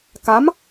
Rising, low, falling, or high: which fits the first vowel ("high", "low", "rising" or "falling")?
rising